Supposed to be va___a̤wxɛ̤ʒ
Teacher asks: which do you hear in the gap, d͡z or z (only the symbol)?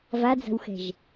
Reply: d͡z